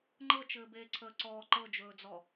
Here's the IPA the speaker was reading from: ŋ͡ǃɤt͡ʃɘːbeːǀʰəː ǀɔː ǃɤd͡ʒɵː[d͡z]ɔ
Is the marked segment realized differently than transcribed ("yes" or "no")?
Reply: no